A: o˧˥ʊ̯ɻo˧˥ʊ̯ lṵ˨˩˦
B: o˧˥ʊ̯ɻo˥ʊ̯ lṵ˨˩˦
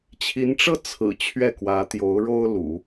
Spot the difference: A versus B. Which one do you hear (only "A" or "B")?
B